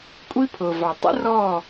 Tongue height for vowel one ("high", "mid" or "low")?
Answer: high